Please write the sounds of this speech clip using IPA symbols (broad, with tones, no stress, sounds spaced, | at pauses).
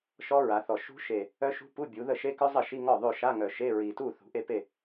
ʃ ɔ˦˥ ɹ a˩˧ θ ɔ˨˩ ʃ ṳ˦˥ ʃ e˨˩ | œ˦˥ ʃ ṳ˦˥ p u˧˥˧ bʲ u˩˧ ð ə˥˩ ʃ e˦˥ k œ˦˥ zˤ ə˥˩ ʃ i˧˥˧ ŋ ɔ˥˩ ðˤ o˥˩ ʃ a˧˥˧ ŋ œ˨˩ ʃ e˧˥˧ ɹ i˨˩ t u˥˩ θ ṳ˩˧ ʔ e˥˩ p e˥˩